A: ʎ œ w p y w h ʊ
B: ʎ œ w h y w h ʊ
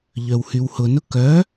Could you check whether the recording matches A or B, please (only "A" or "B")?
B